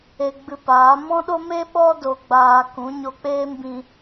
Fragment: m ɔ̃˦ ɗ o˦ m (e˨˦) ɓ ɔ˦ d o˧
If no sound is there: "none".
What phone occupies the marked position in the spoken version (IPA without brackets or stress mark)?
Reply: e˦